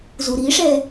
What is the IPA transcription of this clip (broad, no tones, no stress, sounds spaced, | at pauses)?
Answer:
z u ɾ i ʂ ɛ